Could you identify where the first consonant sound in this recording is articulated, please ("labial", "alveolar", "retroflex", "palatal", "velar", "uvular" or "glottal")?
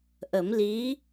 glottal